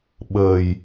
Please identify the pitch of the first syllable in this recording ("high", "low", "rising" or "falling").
low